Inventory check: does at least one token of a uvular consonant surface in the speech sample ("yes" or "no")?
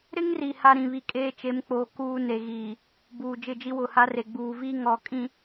no